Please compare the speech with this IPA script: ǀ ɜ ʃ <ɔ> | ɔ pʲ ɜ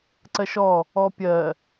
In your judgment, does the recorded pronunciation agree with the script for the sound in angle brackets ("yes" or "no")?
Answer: yes